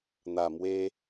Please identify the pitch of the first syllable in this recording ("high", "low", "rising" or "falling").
low